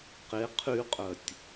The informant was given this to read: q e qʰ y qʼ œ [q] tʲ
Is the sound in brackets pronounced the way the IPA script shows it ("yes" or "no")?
no